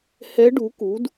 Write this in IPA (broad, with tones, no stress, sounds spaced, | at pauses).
h ɛ˧˥ ɖ u˩˥ k u˩˥ d